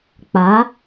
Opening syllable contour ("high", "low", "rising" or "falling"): rising